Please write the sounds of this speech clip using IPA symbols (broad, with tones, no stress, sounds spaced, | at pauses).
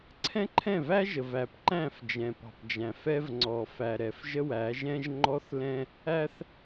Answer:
ǀʰ ɛ̃˦ ǃʰ ɛ̃˦˨ v æ˦ ʒ ə˨ v æ˨ p ǃ æ̃˦˨ f d͡ʒ ɛ̃˨ p ɑ̤˨ p d͡ʒ æ̃˨ f ɛ˦ v ŋ͡ǀ ɔ˨ f æ˨ ɾ ɛ˨ f ʒ ə˦ w æ˨˦ ʒ ɛ̃˦ ʒ ŋ͡ǃ ɔ˦ θ l ɛ̃˦ | æ˦ θ